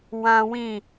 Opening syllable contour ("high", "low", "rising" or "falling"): high